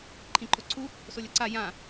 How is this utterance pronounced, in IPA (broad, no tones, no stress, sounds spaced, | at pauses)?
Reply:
ǃʰ ĩ ǃ o ǀʰ u | s o lʲ ɐ ǀ a j ã